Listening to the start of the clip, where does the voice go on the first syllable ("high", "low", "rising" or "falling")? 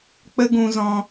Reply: high